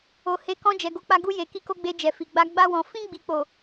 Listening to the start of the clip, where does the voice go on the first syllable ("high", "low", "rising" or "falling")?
low